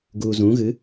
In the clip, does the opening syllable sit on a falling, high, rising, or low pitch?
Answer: low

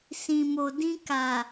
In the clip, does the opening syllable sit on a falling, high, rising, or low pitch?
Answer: low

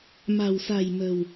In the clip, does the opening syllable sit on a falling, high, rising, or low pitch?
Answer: low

